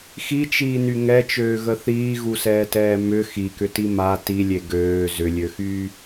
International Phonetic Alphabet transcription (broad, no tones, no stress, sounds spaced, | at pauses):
x i t͡ʃ iː n y ŋ ɛ t͡ʃ øː ɣ ə θ iː ɣ u s ɛː t ɛː m ʏ x i k ʏ t i m a t i lʲ e ɡ øː z ʏ lʲ ø x yː